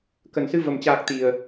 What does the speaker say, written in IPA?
k ə˨˩ n s ɨ˧ v ə˨˩ m t͡ɕ aː˨˩ k̚ t̪ i˨˩ ə̯

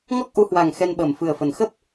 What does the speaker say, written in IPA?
ŋ ɔ˦˥ k̚ ʔ u˨˦ h w a˨˩ ŋ x ɛ˧ n ɓ əː˨˩ m f ɨ˨˩ ə̯ f ə˨˩ n x ə˦˥ p̚

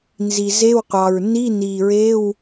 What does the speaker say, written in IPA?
n z i˨˩ z e˧˥˧ w qʷ ɑ˨˩ ɹ n i˧˥˧ n i˨˩ ɹ e˧˥˧ w

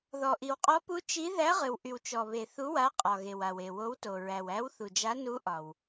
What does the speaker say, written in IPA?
ð ɔ˨ ʔ i˨ w qʼ ɔ˧˥ p u˧˥ t͡ʃ i˧˥ ð æ˧˥ ʁ ɨ˨ w ʔ y˨ w t͡ʃ ɔ˨ β e˨ θ u˧˥ w a˧˥ qʼ ɒ˨ ɣ e˨ w a˨ w e˨ w o˧˥ w t o˨ ɹ æ˨ w æ˧˥ w θ u˨ d͡ʒ a˧˥ n u˧˥ ʔ ɒ˨ w

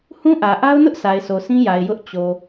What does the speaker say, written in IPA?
h ũ˦ ʔ ä˨ ʔ a˦ ʊ̯ n ʊ˦ ʔ sʰ a˨ ɪ̯ sʰ o˨ s ĩ˦ j a˨ ɪ̯ j ʊ˦ ʔ t͡ɕ o˨

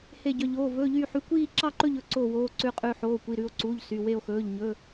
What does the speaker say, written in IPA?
h e˥˧ ɟ œ˧˥˧ ʎ oː˧˥˧ v ɵː˧˥˧ ʎ yː˥˧ ħ y˧˥˧ kʷ iː˥˧ ǁ ɑ˥˧ ǃ ɵ˥˧ ʎ ɵ˥˧ ǀ oː˥˧ w oː˧˥˧ ǀ ʉ˥˧ qʼ ʉ˥˧ ħ oː˧˥˧ kʷ i˧˥˧ ɾ ʉ˥˧ o̯ ǀ uː˧˥˧ ʎ s y˧˥˧ w e˥˧ o̯ x ɵː˧˥˧ ʎ ɲ ɵ˧˥˧

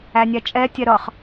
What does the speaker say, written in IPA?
æ nʲ æ t͡ʃʼ ɛ tʲ ɛ ɾ ʌ χ

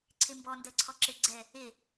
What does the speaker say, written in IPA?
ǀʰ e m b ɔ n d ɜ ǀʰ ɔ ǁ e ɡ͡ǀ ɛ | e

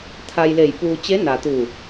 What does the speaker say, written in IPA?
t̪ʰ a˧ j l e˧˩ j p uː˧ t͡ɕ e˧˥ n a˩ t̪ u˧˩

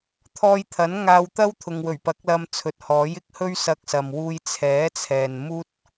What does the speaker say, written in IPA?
t̪ʰ ɔː˧ j t̪ʰ ɐ˨˥ n ŋ aː˧ w t̪ ɐ˥ w t̪ʰ ʊ˨ ŋ w ɵ˨˩ ɥ p ɐ˨˥ k̚ l ɐ˧ m t͡sʰ ɵ˨ t̚ h ɔː˨˥ j ɪ˥ k̚ h ɵ˥ ɥ s ɐ˧ k̚ s ɐ˨ m w uː˧ j t͡sʰ ɛː˨˥ t͡sʰ ɛː˨ n m uː˥ t̚

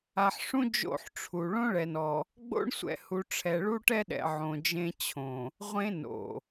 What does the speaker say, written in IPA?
a˨ ħ ʂ ũ˦ d͡ʒ o̰˦˨ ħ ʈ͡ʂʰ u˨ ɭ õ˦ ɭ ɛ˨ n ɔ˨ | ɡ͡b o̰˦ ɳ sʷ ɛ̰˨ h u˨ ʈ͡ʂʰ ɛ˨ ɭ u˦ ʈ ɛ˦ ɗ ɛ̰˨ ʕ õ˨ d͡ʒ ẽ˦ t͡ɕʰ õ˨ | ʁʷ ẽ˦ n o̰˨

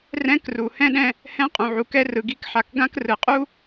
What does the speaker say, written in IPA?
r ɛ̃˥ k r u˩ h ɛ̃˥ ɗ ɛ̃˧ | h ɛ̃˥ qʼ ũ˩ ʕ u˩ k ɛ˥ r ɯ˩ ɡ i˧ k ħ a˩ k ɡ ã˥ k r ɯ˩ qʼ u˥

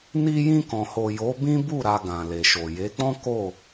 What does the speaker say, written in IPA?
n i˧ j ĩ˧ k ɔ̃˨ h o˨ j o˨˦ b ĩ˦ b u˦˨ ɾ a˧ ɡ ã˨ l e˨ ʃ o˨ j e˨˦ k͡p ɔ̃˦ k o˦˨

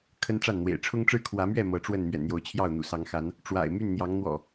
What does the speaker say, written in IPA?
kʰ ə˦ n ʈ͡ʂ a˥˨ n n̪ w ḛ˨˩ ɪ̯ ʈ͡ʂʰ ʊ˦ ŋ ʈ͡ʂ ɻ̩˦ kʰ w ä˨˦ m ɥ ɛ˥˨ m ɤ˨˦ ʈ͡ʂ w ə˥˨ n m ɥ ɛ̰˨˩ n n̪ j o˨˦ ʊ̯ t͡ɕʰ j ɑ˥˨ ʊ̯ n̪ ṵ˨˩ s ɑ˨˦ ŋ x a˨˦ n | ʈ͡ʂ w a̰˨˩ ɪ̯ m y˥˨ n n̪ j ɑ˨˦ ŋ n̪ w ɔ̰˨˩

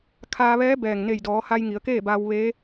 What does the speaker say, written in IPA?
kʰ aː˧ ʋ ɛː˧˥ b ɛː˩ ŋ n e˧˩ j d ɔː˩˧ h a˧ j ŋ i˩˧ ə̯ k eː˥˨ b aː˧ w ʋ e˧˥

